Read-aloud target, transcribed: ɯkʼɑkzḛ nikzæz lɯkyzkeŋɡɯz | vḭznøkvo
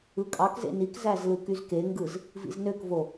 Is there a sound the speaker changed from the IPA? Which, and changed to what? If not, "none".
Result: none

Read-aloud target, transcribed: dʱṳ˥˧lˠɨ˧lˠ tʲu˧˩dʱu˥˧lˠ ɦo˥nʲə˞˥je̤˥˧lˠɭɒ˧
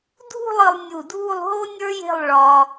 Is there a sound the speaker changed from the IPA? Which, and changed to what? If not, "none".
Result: tʲ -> nʲ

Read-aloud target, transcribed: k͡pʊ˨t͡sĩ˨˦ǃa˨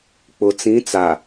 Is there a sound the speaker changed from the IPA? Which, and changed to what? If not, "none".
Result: ǃ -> t͡s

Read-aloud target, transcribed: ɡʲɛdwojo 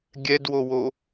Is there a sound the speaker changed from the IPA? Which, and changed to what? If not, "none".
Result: j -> w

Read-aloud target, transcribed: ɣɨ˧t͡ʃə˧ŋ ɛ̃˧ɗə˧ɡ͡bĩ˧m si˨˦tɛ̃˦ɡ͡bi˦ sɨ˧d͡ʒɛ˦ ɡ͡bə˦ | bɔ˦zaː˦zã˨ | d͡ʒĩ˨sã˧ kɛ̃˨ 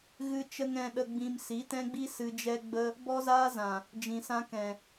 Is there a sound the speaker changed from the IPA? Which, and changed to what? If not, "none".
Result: none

